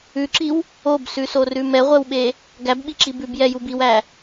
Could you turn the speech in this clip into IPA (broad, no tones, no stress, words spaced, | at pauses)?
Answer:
ʉǁiw | obsʉsorʉ mɛʁʷɛwɓe | ɡæbɓiǁi bʉbjɛjub iwæ